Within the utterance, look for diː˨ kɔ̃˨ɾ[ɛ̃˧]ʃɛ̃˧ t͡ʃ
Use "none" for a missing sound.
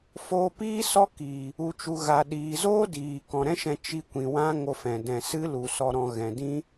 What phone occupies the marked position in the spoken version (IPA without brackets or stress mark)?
ɛ̃˦